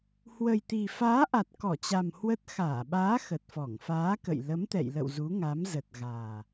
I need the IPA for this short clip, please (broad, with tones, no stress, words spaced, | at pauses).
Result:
hwə˨˩jt̪i˨˩faː˨˦ʔa˨˩t̚ kɔ˧˩t͡ɕa˨˩m hwə˦˥t̚ xaː˧˩ɓaː˨˦ xə˨˩t̚fɔ˧˩ŋfaː˨˦kə̰˧˨j lə˨˦mt̪ɛ̰˧˨jlə̰˧˨w zu˨˦ŋa˨˦m zə˨˩t̚ɣaː˨˩